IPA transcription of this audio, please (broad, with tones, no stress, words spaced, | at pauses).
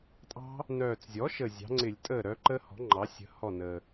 tʼɑ̤˦˥ | nœː˨˩t͡szʲɔ˩˥ʃə˨˩ zʲɑ̤˩˥ŋ͡ǀɪ˧˩˧lʲ tʼəː˥˩ɾœ˦˥ ǃəː˦˥hɔ̤˩˥ŋ͡ǃɑ˩˥ sʲə̤˩˥ hɔ˥˩nəː˨˩